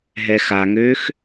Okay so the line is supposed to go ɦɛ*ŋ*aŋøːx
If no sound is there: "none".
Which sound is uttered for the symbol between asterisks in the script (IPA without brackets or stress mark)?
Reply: x